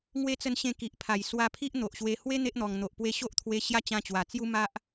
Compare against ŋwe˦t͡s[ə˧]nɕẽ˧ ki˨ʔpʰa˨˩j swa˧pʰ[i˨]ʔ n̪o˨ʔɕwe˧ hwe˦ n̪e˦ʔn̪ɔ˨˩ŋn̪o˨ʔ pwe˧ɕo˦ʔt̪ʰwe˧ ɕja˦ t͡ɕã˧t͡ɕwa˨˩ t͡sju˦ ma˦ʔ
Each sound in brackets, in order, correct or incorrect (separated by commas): correct, incorrect